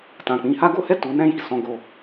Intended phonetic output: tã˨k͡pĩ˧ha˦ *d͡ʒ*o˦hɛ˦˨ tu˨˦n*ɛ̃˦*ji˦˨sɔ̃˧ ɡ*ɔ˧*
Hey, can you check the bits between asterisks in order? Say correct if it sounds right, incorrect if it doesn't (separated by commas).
incorrect, correct, incorrect